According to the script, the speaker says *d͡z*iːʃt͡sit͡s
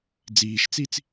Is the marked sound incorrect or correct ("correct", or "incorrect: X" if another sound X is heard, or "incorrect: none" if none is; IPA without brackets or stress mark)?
correct